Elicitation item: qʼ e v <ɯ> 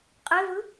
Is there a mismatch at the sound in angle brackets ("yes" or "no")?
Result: no